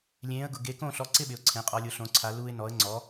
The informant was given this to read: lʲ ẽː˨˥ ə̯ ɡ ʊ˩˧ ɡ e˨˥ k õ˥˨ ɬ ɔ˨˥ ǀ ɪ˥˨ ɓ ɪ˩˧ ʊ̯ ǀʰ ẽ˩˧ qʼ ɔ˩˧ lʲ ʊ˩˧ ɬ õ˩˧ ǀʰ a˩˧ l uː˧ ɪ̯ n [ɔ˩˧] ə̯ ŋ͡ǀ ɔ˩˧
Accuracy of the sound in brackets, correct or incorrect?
correct